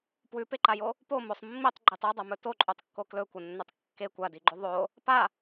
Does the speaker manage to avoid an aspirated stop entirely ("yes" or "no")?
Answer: yes